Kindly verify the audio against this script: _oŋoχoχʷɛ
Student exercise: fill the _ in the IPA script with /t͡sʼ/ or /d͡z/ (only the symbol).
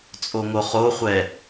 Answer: t͡sʼ